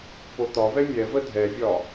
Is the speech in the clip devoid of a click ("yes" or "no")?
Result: yes